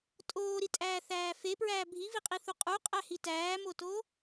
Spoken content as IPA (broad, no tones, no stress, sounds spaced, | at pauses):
tʼ oː ɾ i tʼ æː θ æː f e p ɹ æː bʱ i v i qʼ i θ u qʼ u qʼ æ h i t æː m o t oː